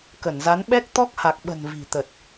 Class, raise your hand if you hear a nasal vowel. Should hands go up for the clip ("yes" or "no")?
no